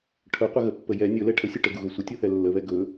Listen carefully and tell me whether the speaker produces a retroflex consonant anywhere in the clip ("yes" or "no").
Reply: yes